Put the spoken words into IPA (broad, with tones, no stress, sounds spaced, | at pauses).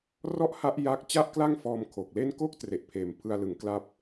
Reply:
r ɔ˥˩ ʔ h a˦˥ ʔ j a˥˩ k̚ t͡ɕ a˥˩ ʔ k l a˥˩ ŋ f ɔː˧ m kʰ o˨˩ k̚ l e˥˩ n k o˥˩ k̚ t r e˨˩ ʔ pʰ eː˨˩ m pʰ ɯ˧ a̯ l ɯ˩˦ ŋ k l a˥˩ p̚